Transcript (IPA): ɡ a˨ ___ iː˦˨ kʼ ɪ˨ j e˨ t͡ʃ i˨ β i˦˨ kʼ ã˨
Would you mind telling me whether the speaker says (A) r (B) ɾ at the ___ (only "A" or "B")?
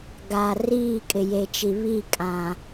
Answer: A